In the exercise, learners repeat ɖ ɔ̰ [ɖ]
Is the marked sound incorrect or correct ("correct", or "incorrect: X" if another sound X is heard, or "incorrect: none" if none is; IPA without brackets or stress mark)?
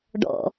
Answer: incorrect: none